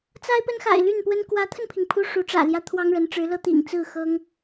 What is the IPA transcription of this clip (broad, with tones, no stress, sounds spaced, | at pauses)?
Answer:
t͡s a˥ ɪ̯ p ə˥ n x a̰˨˩ ɪ̯ l y˥˩ n p w ə˥ n k w ä˧˥ t̪ʰ ə˧ n pʰ i˩ ŋ pʰ u˥ ʂ u˧˥ ʈ͡ʂ ä̰˨˩ l j ä˥ t̪ʰ w ɑ˥ ŋ ɻ ə˧˥ n ʈ͡ʂ ɻ̩˧˥ l ɤ˥ t̪ ḭ˨˩ ŋ t͡s ɹ̩˥˩ x ɤ˥ ŋ